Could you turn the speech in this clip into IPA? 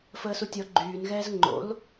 f əː s u tʲ ɔ ɡ͡ǃ yː n ɣ ɛː z ŋ͡ǃ o̰ l

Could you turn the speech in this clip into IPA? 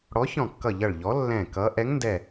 ɽ ɔ˨˥ ç ɔ̃˧˩ kː ʌ˧˩ ʎ ʌ˧˩ ɭ ʎ ɔ˨˥ lː ɛ̃˧˩ k ʌ˨˥ ʔ ɛ˨˥ ŋ n d ɛ˧˩

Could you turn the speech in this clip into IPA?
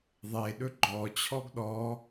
ðˤ e ɗ ɵ ɡ͡ǃ ɔ t͡ɕʰ ɔ ɡ ɗ ɔ

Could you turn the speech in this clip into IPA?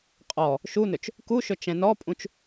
qʼ ɔ | ʃ u n ɵ t͡ʃ | k u ʃ ɵ t͡ʃ ɛ̃ n ɔ pʼ ũ t͡ʃ

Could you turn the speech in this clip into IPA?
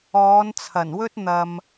ɔː˨˧ n t͡sʰ ɐ˨˩ n w ɵ˥ t̚ n̪ ɐ˨ m

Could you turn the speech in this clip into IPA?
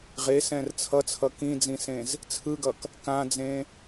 ʁ e s ɛ̃ r t͡sʰ ʌ t͡sʰ ʌ k ĩ d͡z ĩ s ẽ z | t͡sʰ ɯ ɡ ʌ k | k ã d͡z ẽ

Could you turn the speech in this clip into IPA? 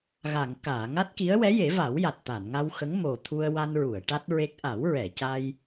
ɣ a˨˩˨ ŋ k aː˨˩˨ ŋ a˦˥ t̚ k i˧˥ ə̯ w ɛ˧˥ j e˨˩˦ v a˨˩˦ w j a˨˩ t̚ t̪ a˨˩˨ n ŋ a˧ w x ə˧˥ ŋ m o˨˩ t̪ʰ u˧ ə̯ w a˧ n ɹ u˨˩˨ ə̯ ʈ a˦˥ t̚ ɹ e˦˥ k̚ ʔ a˨˩˦ w ɹ ɛ˨˩˨ c a˧ j

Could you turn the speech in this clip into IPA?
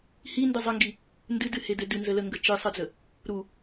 h i n d ɨ zˤ ə ŋ ɡ i | n d ɨ d ɨ h e d ɘ d ɨ n z ə l ə ŋ ɡ ə t͡ʃ ɨ sˤ ɨ d͡z ə | ɾ u

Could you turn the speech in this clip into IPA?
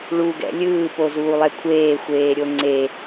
ɭ u ɡ ɛ̰ lʲ ɯː p o z uː lˠ ɛ kʷʰ eː xʷ eː ɾʲ o ŋ͡ǀ e

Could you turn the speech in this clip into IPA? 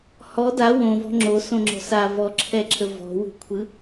h ɔ d a w õ v ɔ̤ ŋ͡ǁ o s õ ŋ͡ǁ ɔ̤ s a v ɔ ǁʰ ɛ ǁʰ ə v ɔ̤ w ṳ kʷʰ ɯ

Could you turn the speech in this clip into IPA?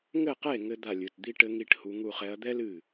ŋ ɘ˥˨ q e˥˨ ŋ ɘ˥ d̪ a˥˨ lʲ ɨ˩˧˩ t d̪ i˥ ʈ ɘ˧˥ ŋ i˥ ʈ h u˧˥ ŋ u˥˨ χ ɛ˧˥ ɐ̯ d̪ ɛ˥ l ɨ˥˨

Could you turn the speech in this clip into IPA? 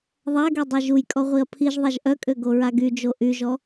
ðˤ a ɡ y dˤ e ʒ u j kʼ ɔ ʁʷ i ɐ̯ pʰ i ʒ ðˤ a ʒ ʔ œ kʼ ø ɡ o ɹ a ɡ y d͡ʒ o ʔ y ʒ ɔ

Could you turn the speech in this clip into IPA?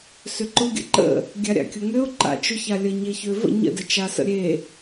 s ʏ ǃ ʊ ɡʲ ə̰ ǃ ə̰ | ɡʲ a ɾʲ a̰ kʲ ʊ ŋ ø ʊ̯ ǃ a̰ t͡ʃ ʊ ç a lʲ ə ɲ e ç ø v ə̰ ɲ ə̰ d ə t͡ʃ a s ə̰ ɾʲ e

